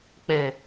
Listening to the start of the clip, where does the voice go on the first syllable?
low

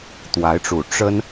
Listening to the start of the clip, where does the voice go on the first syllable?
rising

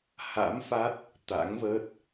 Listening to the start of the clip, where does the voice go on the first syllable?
rising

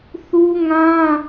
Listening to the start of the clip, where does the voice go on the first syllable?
high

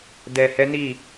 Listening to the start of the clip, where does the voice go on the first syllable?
low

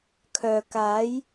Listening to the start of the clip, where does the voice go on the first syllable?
low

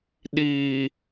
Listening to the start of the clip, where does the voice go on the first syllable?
low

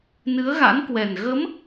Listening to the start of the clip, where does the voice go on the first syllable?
rising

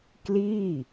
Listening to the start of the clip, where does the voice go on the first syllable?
falling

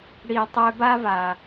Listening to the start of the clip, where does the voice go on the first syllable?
low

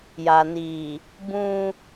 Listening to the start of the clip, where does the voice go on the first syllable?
low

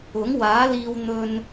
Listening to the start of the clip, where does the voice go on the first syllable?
rising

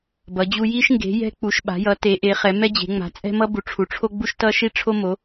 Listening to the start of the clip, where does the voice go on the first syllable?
rising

